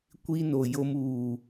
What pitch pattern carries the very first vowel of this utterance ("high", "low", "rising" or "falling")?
high